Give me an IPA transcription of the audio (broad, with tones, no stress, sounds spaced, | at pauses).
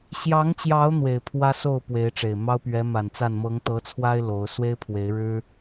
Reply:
ɕ j ɑ˨˦ ŋ t͡ɕ j ɑ˨˦ ʊ̯ n̪ w e˨˩ ɪ̯ pʰ w ä˦ s o˥˨ ʊ̯ p w e˨˦ ɪ̯ ʈ͡ʂ e˨˩ ɪ̯ m ɑ˦ ʊ̯ p ɥ ɛ˨˦ m a˨˩ n t͡s a˥˨ n m ɤ˨˦ ŋ t̪ ɤ˨˦ t͡sʰ w a˦ ɪ̯ l o˨˦ ʊ̯ s w e˦ ɪ̯ pʰ w e˨˦ ɪ̯ ɻ ɻ̩˦